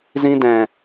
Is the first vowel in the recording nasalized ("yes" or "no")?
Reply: yes